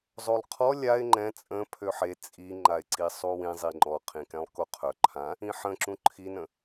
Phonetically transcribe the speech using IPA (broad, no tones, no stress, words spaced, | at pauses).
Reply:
zˤolˠqʰɔ lʲaɪ̯ ŋ͡ǃɛ̃ t͡sʼə̃ pʰøħe t͡sʼiŋ͡ǃaɪ̯ ǀisˤuwĩ zˤiŋ͡ǃɔqʰĩkɛ̃lˠ koqʰœ ǃʰã | ĩħə̃ǁũ ǃʰinə̃